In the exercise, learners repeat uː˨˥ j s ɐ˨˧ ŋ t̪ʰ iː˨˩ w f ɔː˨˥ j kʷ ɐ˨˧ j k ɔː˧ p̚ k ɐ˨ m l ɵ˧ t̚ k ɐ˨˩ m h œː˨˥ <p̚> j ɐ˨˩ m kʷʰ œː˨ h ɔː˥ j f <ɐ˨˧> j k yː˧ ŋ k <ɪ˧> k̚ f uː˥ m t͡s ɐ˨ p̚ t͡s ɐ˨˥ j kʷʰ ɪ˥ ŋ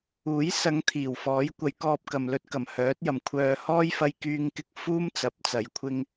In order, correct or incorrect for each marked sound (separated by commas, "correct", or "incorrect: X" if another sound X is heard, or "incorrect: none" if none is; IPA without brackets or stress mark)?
incorrect: t̚, incorrect: ɐ˧, correct